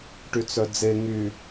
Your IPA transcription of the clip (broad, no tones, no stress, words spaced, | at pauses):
ʈyt͡sœd͡ze ŋy